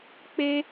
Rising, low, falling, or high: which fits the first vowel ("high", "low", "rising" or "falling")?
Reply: high